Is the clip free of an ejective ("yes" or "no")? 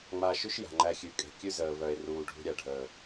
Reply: no